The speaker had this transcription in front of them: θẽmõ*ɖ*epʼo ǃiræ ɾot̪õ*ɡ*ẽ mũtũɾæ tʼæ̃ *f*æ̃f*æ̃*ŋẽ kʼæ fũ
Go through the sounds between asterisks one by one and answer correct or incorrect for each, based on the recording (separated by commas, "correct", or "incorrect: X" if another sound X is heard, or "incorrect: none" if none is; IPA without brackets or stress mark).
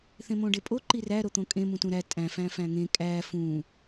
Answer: correct, incorrect: kʼ, correct, correct